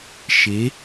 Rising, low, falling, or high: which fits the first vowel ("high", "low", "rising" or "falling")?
rising